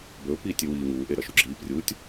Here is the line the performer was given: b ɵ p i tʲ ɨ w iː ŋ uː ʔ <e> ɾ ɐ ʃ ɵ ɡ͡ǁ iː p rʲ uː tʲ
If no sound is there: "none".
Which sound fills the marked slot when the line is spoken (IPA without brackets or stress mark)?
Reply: e